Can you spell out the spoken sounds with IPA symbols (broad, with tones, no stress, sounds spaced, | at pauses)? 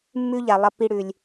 mː ʉ˥ ʎ a˨ lˠ ɐ˦ p i˦ ɽ ʉ˩ lʲ